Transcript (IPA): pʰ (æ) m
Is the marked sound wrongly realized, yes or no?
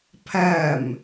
no